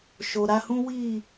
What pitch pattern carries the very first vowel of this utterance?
low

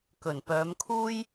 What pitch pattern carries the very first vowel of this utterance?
low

